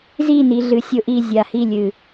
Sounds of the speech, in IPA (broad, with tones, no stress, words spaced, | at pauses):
zi˦˨ni˨ɮɨ˨ sʲʊ˦ʔi˦˨ zʲa˨hi˦˨lʲɨ˨